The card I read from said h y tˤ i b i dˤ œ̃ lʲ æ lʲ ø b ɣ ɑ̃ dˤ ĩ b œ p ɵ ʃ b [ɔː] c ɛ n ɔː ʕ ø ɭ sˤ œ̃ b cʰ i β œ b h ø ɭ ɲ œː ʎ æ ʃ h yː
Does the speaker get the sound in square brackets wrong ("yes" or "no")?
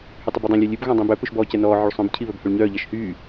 no